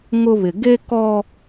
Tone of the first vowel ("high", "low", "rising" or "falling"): high